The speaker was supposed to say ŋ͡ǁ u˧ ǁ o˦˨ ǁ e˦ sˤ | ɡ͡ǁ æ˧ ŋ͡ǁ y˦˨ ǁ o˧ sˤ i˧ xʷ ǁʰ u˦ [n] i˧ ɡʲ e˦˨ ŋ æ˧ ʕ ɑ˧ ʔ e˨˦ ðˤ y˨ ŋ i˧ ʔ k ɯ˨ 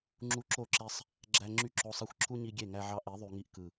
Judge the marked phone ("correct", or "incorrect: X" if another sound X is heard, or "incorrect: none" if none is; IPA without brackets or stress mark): incorrect: ɲ